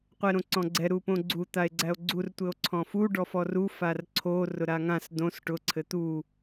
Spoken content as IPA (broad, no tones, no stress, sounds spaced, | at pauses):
qʷ ɛ ɾ õ ǀ ɔ̃ ɡ͡ǀ ɛ ɾ u p õ ɡ͡ǀ u t̪ a e̯ ɡ͡ǀ æ o̯ ɡ͡ǀ u r tʷ ɘ o̯ ǀʰ ɔ̃ f u ɖ ɔ f ɔ r u f a r ǀʰ o r ʊ ɾ a ŋ ã s d õ s ʈ ʊ ǀʰ ɘ t̪ u